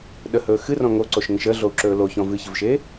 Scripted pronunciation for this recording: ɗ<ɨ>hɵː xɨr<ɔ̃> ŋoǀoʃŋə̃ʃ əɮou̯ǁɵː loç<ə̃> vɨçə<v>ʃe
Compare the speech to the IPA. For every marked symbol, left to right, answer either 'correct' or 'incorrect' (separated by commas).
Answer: incorrect, correct, incorrect, correct